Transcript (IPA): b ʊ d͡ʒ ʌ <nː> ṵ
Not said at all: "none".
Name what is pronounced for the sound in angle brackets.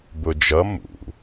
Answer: m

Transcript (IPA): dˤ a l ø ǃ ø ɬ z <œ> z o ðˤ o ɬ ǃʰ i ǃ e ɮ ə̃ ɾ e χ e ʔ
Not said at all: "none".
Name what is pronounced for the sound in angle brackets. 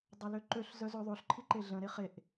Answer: œ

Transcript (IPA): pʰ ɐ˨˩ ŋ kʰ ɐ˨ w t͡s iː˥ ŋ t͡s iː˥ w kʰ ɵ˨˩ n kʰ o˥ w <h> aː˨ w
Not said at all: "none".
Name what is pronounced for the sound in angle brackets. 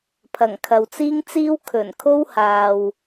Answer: h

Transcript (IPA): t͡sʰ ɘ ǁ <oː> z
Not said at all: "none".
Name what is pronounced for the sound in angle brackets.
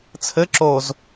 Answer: oː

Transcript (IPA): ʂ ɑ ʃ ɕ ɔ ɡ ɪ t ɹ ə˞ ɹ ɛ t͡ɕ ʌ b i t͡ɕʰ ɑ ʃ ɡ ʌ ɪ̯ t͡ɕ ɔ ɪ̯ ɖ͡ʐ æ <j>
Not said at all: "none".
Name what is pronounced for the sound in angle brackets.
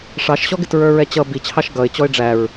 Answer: ɹ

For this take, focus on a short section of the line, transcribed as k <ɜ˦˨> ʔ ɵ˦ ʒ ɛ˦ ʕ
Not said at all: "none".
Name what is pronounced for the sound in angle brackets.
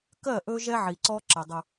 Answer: ɜ˦˨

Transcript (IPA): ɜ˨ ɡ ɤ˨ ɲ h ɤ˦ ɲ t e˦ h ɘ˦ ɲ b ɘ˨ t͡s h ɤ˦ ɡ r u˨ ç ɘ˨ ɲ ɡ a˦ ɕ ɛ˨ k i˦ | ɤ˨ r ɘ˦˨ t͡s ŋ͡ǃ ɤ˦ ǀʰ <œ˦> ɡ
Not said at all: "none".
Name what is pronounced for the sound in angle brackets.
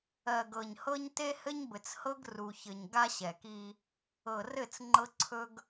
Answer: ɵ˦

